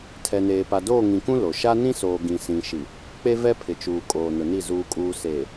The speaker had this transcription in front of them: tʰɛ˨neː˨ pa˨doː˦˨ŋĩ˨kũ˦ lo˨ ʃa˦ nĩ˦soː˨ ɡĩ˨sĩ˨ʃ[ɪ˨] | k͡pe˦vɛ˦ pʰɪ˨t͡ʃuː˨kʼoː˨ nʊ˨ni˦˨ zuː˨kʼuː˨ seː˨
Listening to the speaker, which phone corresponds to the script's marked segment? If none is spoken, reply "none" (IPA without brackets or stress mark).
i˨